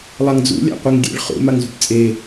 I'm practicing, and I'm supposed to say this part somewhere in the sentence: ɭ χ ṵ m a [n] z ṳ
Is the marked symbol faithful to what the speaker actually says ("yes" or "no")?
no